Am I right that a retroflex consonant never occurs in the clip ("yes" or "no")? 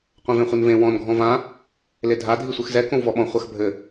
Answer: yes